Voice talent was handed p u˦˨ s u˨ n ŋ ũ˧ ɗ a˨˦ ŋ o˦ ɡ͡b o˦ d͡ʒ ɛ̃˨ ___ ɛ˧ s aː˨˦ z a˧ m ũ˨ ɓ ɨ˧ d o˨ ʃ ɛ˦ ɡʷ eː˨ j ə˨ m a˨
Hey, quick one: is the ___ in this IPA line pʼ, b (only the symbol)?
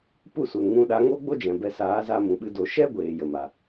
b